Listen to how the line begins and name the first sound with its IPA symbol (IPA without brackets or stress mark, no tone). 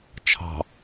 t͡ʃʰ